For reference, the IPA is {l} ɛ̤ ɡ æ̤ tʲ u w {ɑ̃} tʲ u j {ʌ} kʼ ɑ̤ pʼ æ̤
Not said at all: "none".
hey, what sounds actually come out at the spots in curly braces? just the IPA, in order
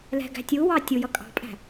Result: l, ɑ, ʌ

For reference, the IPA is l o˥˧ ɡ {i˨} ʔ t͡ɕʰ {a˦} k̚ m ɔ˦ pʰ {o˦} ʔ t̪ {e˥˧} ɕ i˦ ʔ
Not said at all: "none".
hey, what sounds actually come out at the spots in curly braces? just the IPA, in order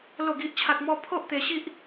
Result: i˦, a˦, o˦, e˧

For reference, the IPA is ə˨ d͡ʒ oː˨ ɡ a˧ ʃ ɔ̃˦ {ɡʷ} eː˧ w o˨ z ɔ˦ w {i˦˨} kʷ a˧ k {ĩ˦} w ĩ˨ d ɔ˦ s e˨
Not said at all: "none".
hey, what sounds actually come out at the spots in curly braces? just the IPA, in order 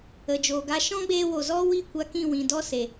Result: ɡ͡b, i˦˨, ĩ˦˨

